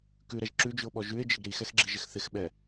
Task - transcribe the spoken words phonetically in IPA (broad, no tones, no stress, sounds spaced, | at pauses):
k ʉ ɾ ɛ ʒ ǁ ʉ d͡ʒ ʉ o̯ ɓ ɔ ʒ ʉ e̯ d͡ʒ ɪ ɡ ɾ i x ɛ x ɡ͡ǁ i ʒ ɪ x θ ɪ x ɓ ɛ